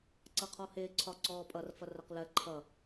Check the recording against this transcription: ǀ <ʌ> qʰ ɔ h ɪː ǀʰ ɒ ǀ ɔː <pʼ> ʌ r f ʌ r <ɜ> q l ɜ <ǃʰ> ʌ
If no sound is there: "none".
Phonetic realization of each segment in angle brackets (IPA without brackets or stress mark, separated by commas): ʌ, pʼ, ɜ, ǃʰ